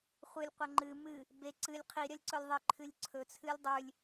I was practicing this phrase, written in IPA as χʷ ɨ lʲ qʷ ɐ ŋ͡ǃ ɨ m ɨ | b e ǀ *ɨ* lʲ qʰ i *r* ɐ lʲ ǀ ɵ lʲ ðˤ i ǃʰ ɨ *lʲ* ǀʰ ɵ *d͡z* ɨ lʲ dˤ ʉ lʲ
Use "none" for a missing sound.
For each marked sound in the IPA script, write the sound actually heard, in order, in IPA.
ɨ, ɾʲ, lʲ, t͡sʰ

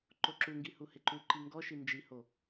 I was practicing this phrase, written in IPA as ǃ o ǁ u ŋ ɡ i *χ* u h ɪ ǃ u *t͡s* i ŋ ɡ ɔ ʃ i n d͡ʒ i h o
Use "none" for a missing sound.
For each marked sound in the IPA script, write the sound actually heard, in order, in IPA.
h, ǃ

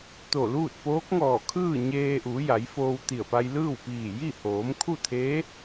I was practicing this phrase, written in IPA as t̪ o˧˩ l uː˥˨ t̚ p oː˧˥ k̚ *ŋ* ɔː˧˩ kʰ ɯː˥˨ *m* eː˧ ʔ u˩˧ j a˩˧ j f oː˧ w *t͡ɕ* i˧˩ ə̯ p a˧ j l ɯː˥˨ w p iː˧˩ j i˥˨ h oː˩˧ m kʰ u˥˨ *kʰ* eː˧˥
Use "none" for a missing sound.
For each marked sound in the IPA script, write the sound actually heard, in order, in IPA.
ŋ, ɲ, t̪, t̪ʰ

